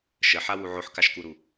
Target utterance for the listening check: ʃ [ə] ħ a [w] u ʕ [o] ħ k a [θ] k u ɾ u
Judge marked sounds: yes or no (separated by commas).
yes, yes, yes, no